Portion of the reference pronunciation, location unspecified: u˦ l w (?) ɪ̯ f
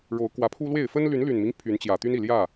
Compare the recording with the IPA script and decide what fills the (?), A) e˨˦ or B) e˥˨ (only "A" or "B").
B